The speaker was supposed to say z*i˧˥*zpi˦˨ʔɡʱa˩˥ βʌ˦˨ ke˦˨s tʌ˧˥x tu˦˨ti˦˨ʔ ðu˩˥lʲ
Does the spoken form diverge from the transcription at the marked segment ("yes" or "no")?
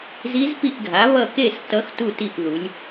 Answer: no